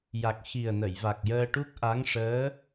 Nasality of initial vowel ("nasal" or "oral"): oral